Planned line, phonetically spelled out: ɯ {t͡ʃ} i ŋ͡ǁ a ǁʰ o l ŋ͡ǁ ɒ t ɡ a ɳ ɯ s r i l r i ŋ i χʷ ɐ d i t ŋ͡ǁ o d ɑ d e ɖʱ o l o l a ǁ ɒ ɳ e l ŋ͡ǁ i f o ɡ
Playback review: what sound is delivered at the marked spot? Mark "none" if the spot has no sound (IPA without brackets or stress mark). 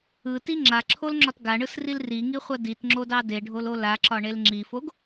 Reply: t